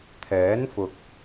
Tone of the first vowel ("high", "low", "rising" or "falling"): rising